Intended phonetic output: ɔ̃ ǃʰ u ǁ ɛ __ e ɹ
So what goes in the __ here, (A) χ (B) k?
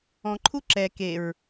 B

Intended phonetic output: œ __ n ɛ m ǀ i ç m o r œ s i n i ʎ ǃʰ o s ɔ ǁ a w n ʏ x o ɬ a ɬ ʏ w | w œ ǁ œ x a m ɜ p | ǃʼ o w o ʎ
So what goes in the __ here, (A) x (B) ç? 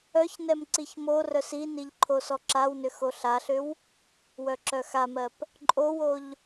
B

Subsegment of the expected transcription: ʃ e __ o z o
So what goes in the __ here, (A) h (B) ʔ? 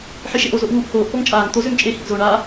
B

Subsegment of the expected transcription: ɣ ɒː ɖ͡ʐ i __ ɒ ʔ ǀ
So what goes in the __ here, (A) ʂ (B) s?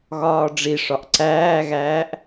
A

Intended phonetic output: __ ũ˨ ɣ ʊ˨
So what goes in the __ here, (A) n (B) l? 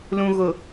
B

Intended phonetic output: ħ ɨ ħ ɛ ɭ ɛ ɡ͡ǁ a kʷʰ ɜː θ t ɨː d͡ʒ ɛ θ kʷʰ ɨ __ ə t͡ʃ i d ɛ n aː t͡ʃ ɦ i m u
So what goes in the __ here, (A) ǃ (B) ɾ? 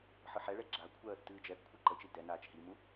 A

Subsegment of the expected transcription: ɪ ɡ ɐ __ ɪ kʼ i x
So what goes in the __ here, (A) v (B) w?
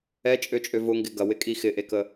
B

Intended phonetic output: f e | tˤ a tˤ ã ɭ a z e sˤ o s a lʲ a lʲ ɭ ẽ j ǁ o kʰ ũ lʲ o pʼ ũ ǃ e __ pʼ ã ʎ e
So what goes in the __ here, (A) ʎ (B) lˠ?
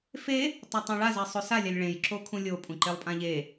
B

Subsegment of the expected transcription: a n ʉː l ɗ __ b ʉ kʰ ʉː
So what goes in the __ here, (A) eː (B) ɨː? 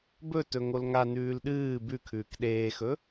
B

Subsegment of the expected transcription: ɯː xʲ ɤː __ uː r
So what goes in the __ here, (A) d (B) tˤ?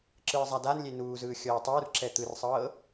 B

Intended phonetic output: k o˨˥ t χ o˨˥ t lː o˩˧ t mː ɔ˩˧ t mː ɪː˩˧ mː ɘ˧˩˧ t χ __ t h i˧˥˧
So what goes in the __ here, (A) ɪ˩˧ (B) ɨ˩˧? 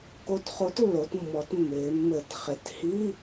A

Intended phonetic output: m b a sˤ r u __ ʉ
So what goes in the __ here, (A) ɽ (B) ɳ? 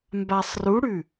A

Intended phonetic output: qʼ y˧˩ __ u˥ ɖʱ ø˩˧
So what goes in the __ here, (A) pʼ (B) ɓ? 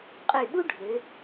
B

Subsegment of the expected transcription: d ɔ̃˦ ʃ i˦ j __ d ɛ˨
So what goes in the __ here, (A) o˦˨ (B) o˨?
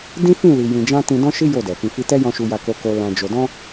A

